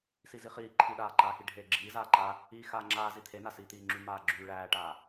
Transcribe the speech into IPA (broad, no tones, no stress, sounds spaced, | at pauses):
s i z i χ iː ǃʰ i ɗ aː ǃ aː x i ɖʱ eː ɡ͡ǁ iː z aː ǃ aː | iː x aː ŋ͡ǁ aː z i t̪ʰ e n a s iː t̪ iː ŋ͡ǁ y m aː ɡ͡ǁ yː ɭ æː ʈ aː